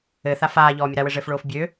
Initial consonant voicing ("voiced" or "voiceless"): voiceless